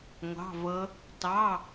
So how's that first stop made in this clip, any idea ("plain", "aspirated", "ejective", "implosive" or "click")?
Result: plain